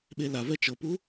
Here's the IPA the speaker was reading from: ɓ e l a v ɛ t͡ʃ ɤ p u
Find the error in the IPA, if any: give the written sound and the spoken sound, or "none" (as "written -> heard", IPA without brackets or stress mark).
none